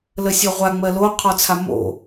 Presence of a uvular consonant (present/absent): present